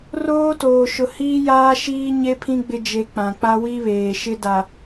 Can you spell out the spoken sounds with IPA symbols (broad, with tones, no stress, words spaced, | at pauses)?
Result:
roː˦toː˨ ʃʊ˨ hiː˦jaː˦ʃiː˦ ɲe˦pʰĩ˦ ɡ͡bɪ˦ d͡ʒe˨ k͡pã˨k͡pa˦ wi˦βeː˨ʃɪ˦da˨